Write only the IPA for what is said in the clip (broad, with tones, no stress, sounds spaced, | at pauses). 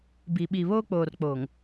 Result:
b i˨ ɓ i˨ β oː˦ k͡p oː˨ r k͡p oː˨ ŋ